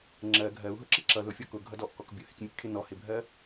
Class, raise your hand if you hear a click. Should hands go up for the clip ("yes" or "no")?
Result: yes